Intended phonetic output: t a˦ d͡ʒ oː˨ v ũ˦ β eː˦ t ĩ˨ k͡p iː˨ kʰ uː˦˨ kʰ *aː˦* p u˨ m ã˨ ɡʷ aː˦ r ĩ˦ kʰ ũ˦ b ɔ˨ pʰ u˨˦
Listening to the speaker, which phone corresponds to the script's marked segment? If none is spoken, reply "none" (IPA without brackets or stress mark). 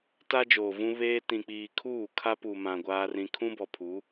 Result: a˦